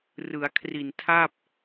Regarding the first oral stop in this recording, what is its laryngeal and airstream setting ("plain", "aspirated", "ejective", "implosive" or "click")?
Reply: aspirated